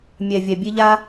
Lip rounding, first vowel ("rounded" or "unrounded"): unrounded